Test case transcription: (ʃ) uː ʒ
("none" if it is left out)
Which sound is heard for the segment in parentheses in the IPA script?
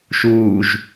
ʃ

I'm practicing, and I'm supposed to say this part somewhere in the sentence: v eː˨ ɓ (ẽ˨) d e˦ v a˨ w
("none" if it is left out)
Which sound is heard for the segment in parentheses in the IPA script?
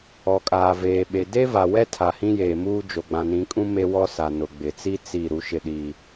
e˨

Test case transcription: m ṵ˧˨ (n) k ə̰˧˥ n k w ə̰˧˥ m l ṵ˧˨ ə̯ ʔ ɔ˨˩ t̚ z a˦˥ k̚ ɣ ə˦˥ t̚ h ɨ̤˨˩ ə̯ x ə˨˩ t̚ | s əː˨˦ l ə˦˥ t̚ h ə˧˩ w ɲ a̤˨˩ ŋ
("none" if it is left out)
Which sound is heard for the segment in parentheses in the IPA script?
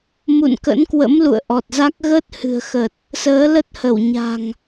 n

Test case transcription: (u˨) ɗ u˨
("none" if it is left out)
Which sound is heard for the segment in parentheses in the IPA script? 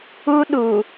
u˦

